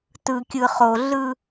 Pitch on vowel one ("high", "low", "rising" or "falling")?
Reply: low